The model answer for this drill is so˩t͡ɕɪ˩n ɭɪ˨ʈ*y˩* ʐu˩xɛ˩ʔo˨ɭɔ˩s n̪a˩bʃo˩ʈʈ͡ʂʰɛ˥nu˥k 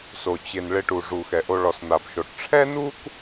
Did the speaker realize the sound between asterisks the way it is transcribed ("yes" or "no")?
no